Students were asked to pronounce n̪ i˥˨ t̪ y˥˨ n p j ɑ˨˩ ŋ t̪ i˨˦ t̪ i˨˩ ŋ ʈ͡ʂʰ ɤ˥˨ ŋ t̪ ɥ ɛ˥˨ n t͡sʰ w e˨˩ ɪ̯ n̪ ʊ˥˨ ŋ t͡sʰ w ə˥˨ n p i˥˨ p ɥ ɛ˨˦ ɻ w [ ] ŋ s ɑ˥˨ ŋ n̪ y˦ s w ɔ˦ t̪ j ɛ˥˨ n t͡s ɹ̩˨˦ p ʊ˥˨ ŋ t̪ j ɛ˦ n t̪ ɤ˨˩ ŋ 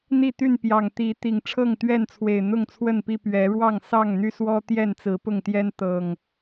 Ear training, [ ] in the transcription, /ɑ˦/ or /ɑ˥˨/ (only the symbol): ɑ˥˨